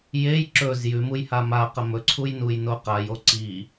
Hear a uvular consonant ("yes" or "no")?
yes